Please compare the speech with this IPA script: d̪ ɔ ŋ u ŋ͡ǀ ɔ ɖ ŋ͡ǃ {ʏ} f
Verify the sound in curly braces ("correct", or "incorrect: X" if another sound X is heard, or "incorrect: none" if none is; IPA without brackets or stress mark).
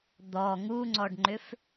correct